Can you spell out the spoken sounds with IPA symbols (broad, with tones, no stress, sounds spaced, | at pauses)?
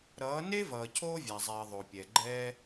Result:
ɾ ʌː˨˦ n e˦ v ʌː˨ cʰ oː˦ vʲ a˨ zˤ ɛː˨ ðˤ o˨ pʲ ɛ˨ ɡ͡ǃ ɛː˦